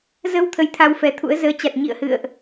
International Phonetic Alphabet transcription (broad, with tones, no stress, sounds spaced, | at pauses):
z ə˧ w t̪ʰ ə˧ j t̪ʰ a˧ w f ɛ˨˦ t̪ʰ ṵ˧˥ ə̯ z əː˨˦ t͡ɕ a˨˩ t̚ ɲ ḭ˧˨ ə̯ h ɨ̰˧˨ ə̯ ʔ